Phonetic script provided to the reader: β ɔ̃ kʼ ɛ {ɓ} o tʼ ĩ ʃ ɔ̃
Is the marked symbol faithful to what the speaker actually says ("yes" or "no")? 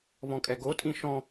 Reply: no